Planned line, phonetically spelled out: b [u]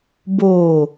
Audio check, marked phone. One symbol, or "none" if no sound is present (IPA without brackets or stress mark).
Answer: o